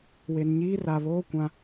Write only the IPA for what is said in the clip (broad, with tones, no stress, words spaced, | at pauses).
we˨nɲiː˦ ra˨βoː˦ kʷã˦